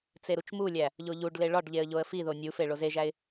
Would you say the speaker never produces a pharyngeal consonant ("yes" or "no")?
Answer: yes